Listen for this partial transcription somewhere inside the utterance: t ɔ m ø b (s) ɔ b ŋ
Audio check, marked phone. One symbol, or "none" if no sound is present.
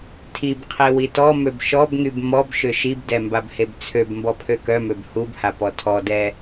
ʃ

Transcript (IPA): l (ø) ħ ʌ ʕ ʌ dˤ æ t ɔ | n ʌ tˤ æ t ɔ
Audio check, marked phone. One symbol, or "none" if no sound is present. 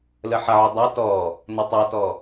ə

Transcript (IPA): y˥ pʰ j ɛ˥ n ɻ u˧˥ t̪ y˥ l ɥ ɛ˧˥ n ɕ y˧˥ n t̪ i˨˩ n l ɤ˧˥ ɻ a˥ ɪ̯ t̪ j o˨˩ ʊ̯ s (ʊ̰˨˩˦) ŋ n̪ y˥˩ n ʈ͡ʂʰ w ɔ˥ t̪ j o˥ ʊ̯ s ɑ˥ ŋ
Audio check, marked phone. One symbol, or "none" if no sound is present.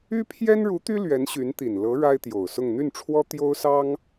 ʊ˥˧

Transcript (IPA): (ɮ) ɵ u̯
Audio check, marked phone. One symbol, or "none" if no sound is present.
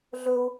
ɮ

